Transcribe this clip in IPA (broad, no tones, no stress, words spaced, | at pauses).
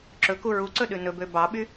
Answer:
ǁɵku ɹuǀɵɗʉ nɵbø bɑɓy